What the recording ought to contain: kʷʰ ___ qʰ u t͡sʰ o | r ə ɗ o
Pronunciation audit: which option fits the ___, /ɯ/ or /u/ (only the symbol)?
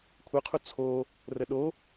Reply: ɯ